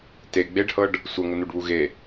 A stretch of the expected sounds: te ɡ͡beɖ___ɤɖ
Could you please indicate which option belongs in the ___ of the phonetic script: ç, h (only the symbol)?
h